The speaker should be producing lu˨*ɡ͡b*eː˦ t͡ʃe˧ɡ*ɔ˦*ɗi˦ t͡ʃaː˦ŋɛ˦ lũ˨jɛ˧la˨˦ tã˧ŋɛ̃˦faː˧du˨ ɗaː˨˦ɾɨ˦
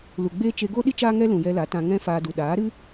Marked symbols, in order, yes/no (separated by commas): yes, no